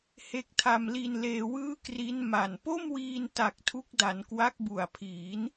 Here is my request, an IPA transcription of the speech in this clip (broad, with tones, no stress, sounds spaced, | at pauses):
h e˦˥ k̚ tʰ a˧ m l i˧ n l eː˧ w ɯː˥˩ k r i˦˥ n m a˨˩ n p o˥˩ m w iː˧ n t a˨˩ k̚ tʰ u˦˥ k̚ d a˩˦ n k w a˦˥ k̚ b u˨˩ a̯ pʰ iː˩˦ n